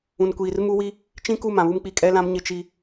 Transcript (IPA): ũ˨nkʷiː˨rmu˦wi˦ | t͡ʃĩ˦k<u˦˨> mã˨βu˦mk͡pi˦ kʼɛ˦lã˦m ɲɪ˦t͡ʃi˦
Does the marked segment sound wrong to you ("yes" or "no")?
no